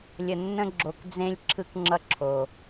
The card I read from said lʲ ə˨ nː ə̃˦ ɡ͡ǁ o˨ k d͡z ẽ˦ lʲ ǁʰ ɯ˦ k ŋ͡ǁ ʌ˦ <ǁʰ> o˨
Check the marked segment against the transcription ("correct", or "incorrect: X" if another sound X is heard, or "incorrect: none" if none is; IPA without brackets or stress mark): correct